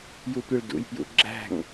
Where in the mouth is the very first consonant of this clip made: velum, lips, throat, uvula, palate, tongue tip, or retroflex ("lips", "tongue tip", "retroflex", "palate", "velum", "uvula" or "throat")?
palate